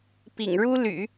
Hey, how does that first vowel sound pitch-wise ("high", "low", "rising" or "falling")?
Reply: low